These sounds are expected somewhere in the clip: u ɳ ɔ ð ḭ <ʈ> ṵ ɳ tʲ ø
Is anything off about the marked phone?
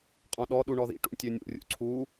no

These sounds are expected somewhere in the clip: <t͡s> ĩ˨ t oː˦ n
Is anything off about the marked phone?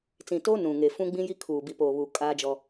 no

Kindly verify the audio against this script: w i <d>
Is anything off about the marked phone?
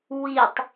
yes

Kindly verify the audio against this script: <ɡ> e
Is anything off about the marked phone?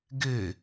no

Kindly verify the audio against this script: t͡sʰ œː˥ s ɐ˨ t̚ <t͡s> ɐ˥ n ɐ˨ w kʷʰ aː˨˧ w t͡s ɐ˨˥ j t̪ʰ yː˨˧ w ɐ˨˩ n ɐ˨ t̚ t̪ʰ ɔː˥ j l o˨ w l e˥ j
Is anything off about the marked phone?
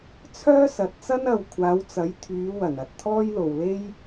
no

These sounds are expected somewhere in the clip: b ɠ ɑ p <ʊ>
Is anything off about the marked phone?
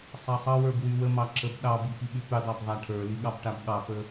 yes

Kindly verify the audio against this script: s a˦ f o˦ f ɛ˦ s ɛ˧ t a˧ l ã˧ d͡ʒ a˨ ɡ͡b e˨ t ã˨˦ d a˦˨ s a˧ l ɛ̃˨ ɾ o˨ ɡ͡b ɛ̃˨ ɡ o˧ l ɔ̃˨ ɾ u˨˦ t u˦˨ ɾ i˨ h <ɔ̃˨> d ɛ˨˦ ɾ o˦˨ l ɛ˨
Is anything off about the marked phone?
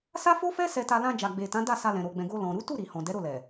no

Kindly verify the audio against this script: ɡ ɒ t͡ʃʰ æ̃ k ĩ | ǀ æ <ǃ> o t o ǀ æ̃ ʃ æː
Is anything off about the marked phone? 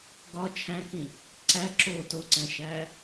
yes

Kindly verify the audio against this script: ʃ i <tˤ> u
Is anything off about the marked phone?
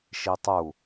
no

